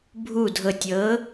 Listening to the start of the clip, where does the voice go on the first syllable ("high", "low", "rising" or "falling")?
low